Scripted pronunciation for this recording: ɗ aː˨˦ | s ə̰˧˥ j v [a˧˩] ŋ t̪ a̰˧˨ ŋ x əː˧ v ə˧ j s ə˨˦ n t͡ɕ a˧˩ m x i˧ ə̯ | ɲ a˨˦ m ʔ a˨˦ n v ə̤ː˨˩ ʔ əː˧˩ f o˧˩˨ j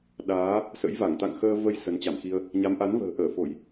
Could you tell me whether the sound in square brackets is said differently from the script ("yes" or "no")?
no